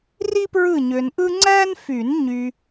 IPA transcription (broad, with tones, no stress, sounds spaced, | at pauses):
r i˥ p ɹ ɯ˦˨ ɲ ø˨ n ʔ ɯ˥ ŋ͡ǀ æ˥ n f y˨˩˦ n ɲ y˨